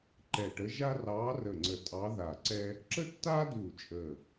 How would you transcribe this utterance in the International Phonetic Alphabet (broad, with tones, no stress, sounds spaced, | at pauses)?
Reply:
ǃ ɛ˧˩ ʈ ə˧˥ ʒ a˥ r ɑː˧˥ r ə˧˩ ŋ͡ǀ ə˧˩ tʼ ɑ˧˥ ð a˧˩ ǀ ɛ˥ | ǁ ə˥ tː aː˥ d uː˧˩ t͡ʃʼ əː˧˩